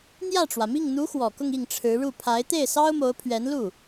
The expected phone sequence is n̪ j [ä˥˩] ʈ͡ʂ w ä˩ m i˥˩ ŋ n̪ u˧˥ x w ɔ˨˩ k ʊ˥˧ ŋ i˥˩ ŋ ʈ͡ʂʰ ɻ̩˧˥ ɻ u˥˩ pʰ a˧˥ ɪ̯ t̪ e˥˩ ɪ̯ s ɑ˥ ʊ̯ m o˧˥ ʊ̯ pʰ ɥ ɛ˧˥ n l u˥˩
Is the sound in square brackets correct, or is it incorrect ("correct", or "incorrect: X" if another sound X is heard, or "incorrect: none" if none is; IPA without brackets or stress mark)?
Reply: correct